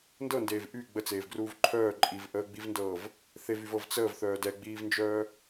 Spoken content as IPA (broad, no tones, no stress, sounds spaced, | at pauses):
n d ɤ n d eː v ʔ y ɡ͡b ə t͡s eː v ɡ r uː v ǃʰ œː ǃʼ i v ʔ əː ɡ͡b i v n d ɤː v | θ e v y v ɤ v t͡s əː v θ œː d ɛ ɡ͡b iː v n d͡ʒ œː